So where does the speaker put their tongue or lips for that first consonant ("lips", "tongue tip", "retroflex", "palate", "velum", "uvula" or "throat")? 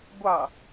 velum